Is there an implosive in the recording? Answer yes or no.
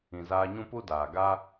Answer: no